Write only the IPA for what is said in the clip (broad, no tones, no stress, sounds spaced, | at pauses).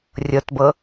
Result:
rʲ ɤ t b ɤ